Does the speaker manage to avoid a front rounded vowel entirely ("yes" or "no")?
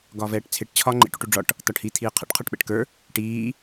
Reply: yes